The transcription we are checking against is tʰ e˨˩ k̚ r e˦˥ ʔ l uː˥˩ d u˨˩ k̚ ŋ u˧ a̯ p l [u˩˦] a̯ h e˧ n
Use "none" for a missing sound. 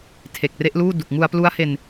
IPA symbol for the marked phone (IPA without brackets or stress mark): u˦˥